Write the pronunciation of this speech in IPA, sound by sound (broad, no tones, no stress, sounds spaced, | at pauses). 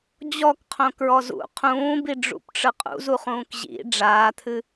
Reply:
d͡ʑ ɔ k qʰ õ k ɹ ɔ z ṵ qʰ ũː b i ɖ͡ʐ ṵ p ʈ͡ʂ ɯ qʼ ṵ z u χ ũː k ʑ ḭ ɖ͡ʐ aː t̪ʰ ɨ